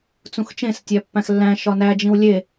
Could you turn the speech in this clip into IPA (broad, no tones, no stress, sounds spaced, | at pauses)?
t͡s ũ x t͡ʃ ẽ s tʲ æ pː æ̃ x lː æ̃ ʃ ɒ n æ d͡ʒ ĩ w lʲ e